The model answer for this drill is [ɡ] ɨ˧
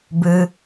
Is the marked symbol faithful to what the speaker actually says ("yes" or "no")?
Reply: no